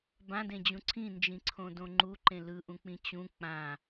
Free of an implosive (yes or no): yes